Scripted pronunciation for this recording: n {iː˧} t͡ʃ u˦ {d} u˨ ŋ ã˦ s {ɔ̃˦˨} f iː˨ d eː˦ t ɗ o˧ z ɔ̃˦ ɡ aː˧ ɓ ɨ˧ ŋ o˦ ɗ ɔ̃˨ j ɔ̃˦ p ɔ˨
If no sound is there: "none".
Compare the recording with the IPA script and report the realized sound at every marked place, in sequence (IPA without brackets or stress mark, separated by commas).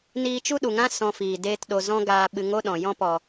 iː˧, ɗ, ɔ̃˧